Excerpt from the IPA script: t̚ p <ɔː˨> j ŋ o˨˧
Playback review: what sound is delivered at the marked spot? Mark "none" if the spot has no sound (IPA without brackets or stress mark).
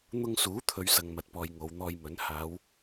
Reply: ɔː˨